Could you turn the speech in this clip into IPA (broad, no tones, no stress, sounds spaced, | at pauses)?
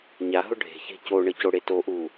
ɲ a ɦ ʊ ɖʱ e̤ ç e̤ c o ɳ ə c o ɽ e t o ʔ u